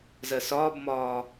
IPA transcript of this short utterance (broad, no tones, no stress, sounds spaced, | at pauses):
z ɜ s ɒː b m ɒː